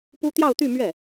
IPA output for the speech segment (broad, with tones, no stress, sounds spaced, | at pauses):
p u˥ t̪ j ɑ˥˧ ʊ̯ t̪ y˥˧ m ɥ ɛ˥˩